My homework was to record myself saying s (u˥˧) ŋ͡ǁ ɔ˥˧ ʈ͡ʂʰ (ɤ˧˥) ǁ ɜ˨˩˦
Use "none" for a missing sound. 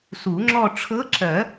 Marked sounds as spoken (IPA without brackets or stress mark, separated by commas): u˨˩˦, ɤ˧˥